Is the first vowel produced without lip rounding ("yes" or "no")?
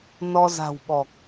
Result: no